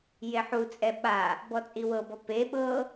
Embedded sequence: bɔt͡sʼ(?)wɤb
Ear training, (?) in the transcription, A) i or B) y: A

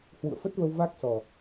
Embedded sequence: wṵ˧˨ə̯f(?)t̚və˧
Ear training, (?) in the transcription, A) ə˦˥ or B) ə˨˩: A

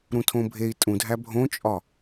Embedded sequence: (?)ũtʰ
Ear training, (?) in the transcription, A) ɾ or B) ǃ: A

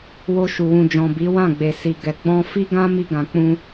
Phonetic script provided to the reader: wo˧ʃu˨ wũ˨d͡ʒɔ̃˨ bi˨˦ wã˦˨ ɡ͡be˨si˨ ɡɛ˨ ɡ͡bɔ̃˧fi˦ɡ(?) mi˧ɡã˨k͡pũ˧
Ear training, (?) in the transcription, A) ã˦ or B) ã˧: A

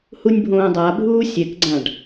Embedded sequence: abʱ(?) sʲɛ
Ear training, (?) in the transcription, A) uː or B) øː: A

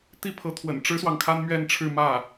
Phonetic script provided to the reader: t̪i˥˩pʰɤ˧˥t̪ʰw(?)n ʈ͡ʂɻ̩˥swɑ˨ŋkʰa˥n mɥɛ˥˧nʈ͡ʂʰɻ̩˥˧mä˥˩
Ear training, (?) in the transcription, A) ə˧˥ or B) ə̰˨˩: B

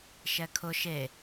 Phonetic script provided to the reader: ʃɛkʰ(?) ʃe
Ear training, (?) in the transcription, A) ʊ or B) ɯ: A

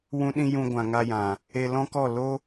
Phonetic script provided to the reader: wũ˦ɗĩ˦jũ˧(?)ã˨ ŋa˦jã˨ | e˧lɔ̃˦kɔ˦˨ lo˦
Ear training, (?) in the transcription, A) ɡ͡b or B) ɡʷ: B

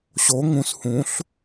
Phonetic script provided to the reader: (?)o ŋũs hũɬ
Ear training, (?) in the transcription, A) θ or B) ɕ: B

